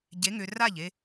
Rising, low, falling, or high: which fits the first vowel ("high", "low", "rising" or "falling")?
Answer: rising